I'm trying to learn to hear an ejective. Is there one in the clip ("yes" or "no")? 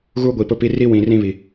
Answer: no